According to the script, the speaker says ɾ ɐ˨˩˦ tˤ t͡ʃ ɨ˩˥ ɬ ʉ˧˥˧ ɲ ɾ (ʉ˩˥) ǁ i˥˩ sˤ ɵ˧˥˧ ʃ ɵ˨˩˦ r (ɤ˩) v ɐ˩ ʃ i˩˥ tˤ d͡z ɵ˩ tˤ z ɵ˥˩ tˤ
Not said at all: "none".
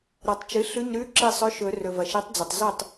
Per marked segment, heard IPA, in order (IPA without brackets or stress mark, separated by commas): ʉ˧˥˧, ɵ˩